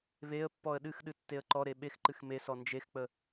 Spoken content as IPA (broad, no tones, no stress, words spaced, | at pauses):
βeə̯pːɔə̯ ɗɨxɗɨ tːeə̯ǃɔɾe ɓexǃɨx mesɔ nd͡ʒexk͡pə